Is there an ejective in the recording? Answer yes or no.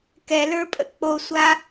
yes